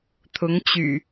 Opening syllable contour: rising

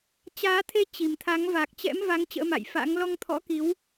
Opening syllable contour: rising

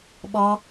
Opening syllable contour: high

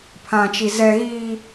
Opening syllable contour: high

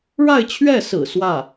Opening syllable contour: falling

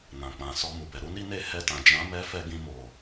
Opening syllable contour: low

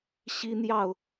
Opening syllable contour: high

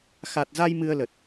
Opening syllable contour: low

